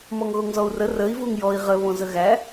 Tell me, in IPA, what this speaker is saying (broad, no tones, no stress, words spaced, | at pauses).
mɔŋɣoŋzɔu̯rə rəi̯ vuŋjɔi̯ ʁə βõzəɣæ